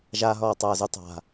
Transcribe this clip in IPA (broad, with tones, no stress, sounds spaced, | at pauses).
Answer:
ʒ aː˧ ɦ ɔː˨˩ tˤ aː˨˩ z u˧ tˤ a̤˨˩